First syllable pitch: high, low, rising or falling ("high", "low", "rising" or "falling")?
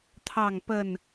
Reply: falling